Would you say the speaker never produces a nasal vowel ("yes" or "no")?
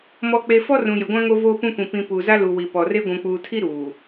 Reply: no